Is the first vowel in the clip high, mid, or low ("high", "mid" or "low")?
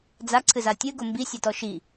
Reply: low